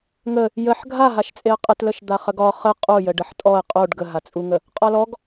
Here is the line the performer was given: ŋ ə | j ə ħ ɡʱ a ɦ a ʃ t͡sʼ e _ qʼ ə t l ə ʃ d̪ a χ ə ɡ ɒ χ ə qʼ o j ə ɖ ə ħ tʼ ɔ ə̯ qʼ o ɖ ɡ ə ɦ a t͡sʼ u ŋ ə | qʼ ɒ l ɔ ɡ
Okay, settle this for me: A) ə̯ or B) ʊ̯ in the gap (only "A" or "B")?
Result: A